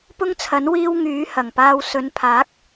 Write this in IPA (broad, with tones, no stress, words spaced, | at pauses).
pʊ˥ŋt͡sʰɐ˨˥n wiː˥w ŋyː˨˥ hɐ˨˩ŋpaː˧w sɵ˨˧npʰaː˨˥k̚